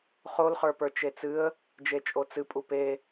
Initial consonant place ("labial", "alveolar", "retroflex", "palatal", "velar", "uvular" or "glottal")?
uvular